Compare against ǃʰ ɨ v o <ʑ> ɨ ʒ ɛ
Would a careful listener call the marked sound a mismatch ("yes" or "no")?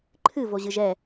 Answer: no